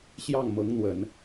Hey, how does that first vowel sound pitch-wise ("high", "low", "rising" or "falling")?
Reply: falling